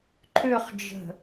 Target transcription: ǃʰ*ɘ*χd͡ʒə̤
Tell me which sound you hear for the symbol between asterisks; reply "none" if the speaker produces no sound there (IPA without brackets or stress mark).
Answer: ø